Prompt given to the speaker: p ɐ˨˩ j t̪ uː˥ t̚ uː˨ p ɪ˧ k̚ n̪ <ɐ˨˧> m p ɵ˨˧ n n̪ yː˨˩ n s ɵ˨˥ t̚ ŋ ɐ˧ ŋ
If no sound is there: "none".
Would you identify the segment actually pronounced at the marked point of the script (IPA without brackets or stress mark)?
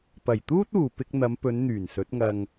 ɐ˨˧